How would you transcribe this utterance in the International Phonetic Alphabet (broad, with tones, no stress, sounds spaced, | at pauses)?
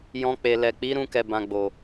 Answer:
j ɔ̃˨ k͡p e˨ l ɛ˨ k͡p i˨˦ ɾ ũ˧ k ɛ˨ b ã˨ ɡ͡b o˨